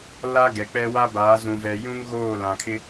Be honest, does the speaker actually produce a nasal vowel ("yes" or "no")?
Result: yes